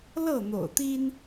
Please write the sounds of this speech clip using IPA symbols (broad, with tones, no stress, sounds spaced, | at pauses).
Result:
l ɤ˥˨ n̪ o̰˨˩ ʊ̯ t̪ i˦ n